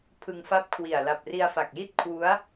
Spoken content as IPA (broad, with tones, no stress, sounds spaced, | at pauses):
pʰ ɯ˧ ŋ f a˦˥ p̚ kʰ w i˨˩ a̯ l a˨˩ p̚ r i˧ a̯ f a˨˩ k̚ j i˥˩ t̚ kʰ w u˦˥ a̯